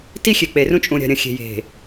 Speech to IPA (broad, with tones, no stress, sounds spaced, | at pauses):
t i˦ xʲ e˨ k͡p e˨ r ũ˦ t͡ʃʼ ũ˨ ɾʲ a̤˨ ɾʲ ɐ̃˨ xʲ e̤˨ j e̤˨